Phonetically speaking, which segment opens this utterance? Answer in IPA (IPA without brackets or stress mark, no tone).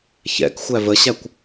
ç